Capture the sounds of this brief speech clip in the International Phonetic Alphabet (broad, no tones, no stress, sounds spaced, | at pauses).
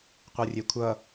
qʷ ɯ rʲ e kʷʰ ʌ